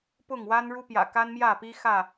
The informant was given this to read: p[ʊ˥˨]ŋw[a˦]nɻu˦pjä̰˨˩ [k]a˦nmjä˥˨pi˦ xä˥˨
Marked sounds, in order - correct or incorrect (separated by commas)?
correct, correct, correct